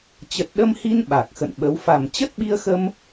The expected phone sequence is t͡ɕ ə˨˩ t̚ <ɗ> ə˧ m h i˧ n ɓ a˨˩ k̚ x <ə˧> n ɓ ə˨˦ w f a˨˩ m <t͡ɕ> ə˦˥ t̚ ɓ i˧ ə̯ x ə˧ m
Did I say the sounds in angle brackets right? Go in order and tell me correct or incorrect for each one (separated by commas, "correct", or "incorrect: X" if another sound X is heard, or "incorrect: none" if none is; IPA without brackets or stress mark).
correct, incorrect: ə̰˧˨, correct